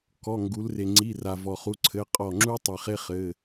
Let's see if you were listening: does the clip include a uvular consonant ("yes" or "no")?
yes